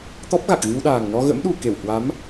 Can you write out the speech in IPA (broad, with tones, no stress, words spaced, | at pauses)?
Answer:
t̪ɔ˦˥p̚ɣa˨˩k̚ɣɨ˧wɗaː˨˩ŋ nɔ˧ɣə̰˧˥mɗu˨˩ ke˧˩whwa˨˦m